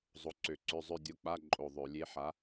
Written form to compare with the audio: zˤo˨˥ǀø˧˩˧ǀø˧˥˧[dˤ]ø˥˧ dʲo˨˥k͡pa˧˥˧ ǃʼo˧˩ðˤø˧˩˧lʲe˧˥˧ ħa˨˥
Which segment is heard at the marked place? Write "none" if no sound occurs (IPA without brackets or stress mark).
zˤ